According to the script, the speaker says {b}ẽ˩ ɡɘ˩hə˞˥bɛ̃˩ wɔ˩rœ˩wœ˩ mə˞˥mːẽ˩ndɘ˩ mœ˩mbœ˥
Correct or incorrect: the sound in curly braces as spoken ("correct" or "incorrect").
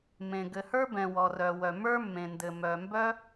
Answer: incorrect